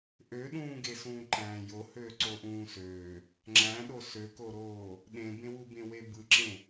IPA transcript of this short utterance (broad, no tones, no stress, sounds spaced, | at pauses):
ʔ ø ɗ ũː ɡ e s ũː ǃ æ̃ː j o h øː ǀ o ʔ ũː s øː | ŋ͡ǁ æ̃ ɗ o s ø k o ɾ oː | ɗ ẽ b ẽ w u b ẽ w e b ɯ ǁ ẽ